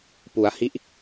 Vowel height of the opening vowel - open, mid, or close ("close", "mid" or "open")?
close